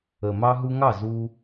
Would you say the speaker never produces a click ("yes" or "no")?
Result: yes